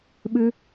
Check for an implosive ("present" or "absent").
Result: present